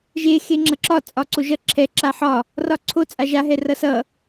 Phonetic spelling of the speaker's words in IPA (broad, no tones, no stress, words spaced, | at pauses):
ʒe xeŋ͡ǁʌǁɒ t͡sʼɒǀoʒʌ ǁʰɛ ǁaħɒ | rɒǀʰo t͡sʼaʒa ɦɛrʌsʌ